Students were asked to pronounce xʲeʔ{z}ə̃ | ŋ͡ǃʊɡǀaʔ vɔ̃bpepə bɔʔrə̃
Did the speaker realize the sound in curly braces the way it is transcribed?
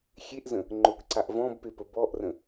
yes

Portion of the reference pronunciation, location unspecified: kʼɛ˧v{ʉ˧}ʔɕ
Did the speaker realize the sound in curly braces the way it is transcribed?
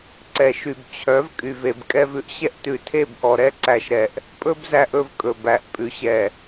yes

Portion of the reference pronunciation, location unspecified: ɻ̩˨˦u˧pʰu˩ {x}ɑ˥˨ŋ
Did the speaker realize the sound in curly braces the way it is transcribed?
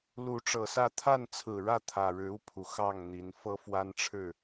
yes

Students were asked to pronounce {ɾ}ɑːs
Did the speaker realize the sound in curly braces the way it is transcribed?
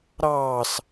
yes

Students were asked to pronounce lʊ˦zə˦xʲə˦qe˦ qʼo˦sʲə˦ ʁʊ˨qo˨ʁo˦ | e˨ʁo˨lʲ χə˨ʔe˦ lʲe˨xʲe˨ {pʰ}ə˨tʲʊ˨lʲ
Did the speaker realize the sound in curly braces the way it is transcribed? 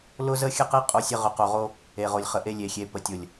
no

